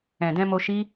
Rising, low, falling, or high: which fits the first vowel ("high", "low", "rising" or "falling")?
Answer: low